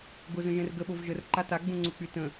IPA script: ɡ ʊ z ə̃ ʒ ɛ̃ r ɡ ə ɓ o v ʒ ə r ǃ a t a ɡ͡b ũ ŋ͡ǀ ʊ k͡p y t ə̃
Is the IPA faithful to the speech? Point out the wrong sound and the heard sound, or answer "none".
none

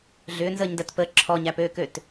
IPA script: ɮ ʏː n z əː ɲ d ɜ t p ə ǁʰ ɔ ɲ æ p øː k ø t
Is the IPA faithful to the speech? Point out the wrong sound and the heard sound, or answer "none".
none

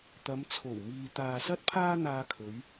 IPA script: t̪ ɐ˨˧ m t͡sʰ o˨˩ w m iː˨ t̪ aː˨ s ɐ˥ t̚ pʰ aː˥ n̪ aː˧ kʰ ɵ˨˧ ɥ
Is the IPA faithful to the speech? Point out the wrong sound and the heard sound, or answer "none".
none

